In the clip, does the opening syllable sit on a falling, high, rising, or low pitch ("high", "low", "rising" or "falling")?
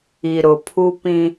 low